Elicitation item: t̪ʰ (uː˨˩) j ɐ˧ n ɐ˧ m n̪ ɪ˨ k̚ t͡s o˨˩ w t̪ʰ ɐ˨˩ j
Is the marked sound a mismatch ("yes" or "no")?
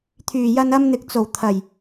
yes